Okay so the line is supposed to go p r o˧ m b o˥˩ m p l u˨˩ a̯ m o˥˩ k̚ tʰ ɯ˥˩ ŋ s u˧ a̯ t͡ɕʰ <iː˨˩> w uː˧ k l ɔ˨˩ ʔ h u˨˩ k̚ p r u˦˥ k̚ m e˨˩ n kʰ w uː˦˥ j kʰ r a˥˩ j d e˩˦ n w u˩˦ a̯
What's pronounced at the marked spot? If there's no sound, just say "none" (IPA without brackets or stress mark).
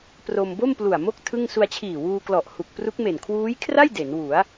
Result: iː˨˩